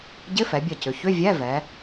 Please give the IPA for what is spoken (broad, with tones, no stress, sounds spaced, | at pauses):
ɟ ɪ˧˥˧ f ɛ˩˧ bʲ ɐ˧˩ c ʏ˩˧ ç ʏ˧˥˧ vʲ ɛ˧˥˧ v ɛ˩˧